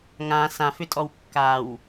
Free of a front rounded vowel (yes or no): no